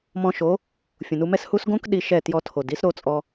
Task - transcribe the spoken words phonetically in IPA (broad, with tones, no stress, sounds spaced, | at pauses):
m ɔ̃˧ ʃ o˨˦ | fʲ ũ˨ n u˧ m ɛ˦ s h u˦ s ɡ õ˦ k ɗ i˧ ʃ ɛ˦˨ t j ɔ˧ tʰ o˨ d i˦ s ɾ o˧ t͡sʼ ɔ˧